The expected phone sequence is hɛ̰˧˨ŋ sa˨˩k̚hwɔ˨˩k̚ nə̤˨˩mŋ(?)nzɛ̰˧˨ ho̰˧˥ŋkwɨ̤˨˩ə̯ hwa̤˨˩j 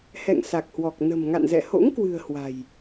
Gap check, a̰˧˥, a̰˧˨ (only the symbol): a̰˧˨